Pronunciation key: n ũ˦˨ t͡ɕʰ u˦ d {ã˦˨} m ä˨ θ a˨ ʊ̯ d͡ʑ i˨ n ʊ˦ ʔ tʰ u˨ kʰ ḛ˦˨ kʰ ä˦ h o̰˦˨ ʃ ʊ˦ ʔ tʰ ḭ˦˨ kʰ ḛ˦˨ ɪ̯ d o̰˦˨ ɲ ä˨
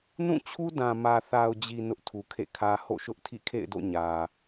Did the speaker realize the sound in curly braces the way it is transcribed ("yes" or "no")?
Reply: no